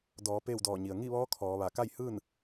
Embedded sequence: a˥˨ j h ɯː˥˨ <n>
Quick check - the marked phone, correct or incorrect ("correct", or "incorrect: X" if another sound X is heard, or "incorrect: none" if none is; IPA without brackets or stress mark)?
correct